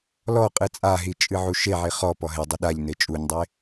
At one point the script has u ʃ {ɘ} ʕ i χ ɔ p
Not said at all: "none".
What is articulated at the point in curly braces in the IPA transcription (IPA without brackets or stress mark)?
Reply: e